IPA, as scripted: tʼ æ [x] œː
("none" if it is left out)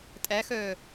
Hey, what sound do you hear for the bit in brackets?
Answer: x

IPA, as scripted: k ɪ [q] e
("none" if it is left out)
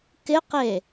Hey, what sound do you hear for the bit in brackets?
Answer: q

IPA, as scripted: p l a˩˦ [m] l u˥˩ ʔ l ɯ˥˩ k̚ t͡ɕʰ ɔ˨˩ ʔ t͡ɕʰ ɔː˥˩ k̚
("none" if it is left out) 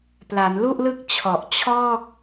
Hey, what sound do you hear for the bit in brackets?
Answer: n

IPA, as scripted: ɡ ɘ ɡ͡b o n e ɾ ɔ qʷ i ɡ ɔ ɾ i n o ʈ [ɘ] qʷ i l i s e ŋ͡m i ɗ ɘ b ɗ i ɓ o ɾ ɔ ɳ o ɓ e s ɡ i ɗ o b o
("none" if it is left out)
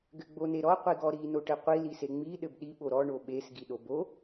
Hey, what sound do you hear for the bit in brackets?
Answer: ɘ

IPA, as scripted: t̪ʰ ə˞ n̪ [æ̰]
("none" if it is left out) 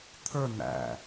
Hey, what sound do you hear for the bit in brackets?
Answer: æ̰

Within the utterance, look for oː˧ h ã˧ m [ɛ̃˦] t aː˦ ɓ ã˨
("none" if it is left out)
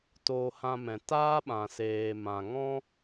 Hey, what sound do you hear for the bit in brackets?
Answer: ɛ̃˨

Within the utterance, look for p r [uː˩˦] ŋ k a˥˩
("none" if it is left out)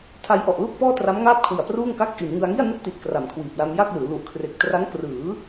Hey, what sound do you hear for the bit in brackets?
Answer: uː˥˩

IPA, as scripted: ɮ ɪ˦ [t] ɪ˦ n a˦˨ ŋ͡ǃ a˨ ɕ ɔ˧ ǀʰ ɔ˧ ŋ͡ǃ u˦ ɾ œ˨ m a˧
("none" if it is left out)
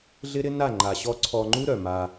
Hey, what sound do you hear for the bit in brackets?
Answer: ɾ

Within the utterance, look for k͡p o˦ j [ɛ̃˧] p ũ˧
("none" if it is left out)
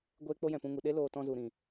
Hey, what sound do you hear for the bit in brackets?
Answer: ɛ̃˨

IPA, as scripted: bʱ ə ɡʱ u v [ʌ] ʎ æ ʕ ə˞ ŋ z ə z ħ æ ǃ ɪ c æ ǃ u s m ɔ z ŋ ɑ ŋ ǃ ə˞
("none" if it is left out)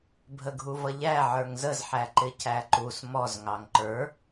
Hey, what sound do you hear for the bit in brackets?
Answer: ʌ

